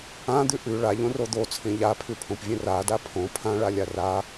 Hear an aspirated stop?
yes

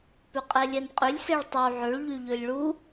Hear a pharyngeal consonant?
yes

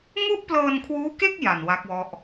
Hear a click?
no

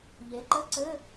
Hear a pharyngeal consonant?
no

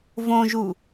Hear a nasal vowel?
yes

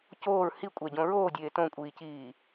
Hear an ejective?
yes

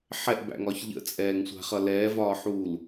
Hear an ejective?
yes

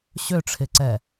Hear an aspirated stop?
yes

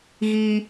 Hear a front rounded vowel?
no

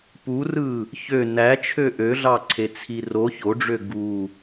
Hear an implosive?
no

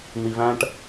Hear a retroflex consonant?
yes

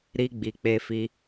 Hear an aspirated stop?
no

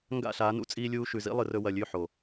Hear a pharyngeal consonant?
yes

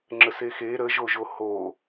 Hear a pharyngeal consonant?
no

